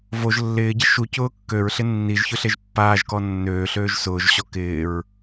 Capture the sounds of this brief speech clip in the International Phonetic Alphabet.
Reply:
v o ʒ lː ɪː ɟ ɪ ʃ u c ʊː kː ø ɹ ɬ ɪ nː i ʒ ç ʊ ɬ e ʒ pː aː ʒ k ɔ nː øː ɬ øː ʒ s ʊː ʒ ɕ ɔ k ɪː ɹ

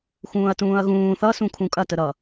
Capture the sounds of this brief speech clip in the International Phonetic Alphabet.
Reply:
x ũː ɐ̯ t ũː ɐ̯ ɣ ũː θ ʌ s ũ kʰ ũ kʼ ɐ t ə ɾ ʌ

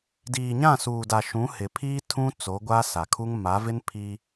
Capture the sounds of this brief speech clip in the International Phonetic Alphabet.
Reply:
d iː˨ ɲ ã˦˨ s uː˨ d a˨ ʃ ũ˨˦ h ɪ˨ pʰ iː˦ tʰ ũ˦ t͡s o˨˦ ɡʷ a˦ s a˨ kʰ u˦ ŋ m a˨˦ v ɪ˦ n pʰ iː˦

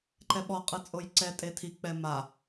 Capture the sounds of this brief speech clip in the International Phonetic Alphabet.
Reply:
ǃ ɛ ɓ ɔ qʼ ɯ t͡sʼ o j ǀ ɛ tʼ e tʰ i k͡p ɛ m a

